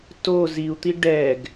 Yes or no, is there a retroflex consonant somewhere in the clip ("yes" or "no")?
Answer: yes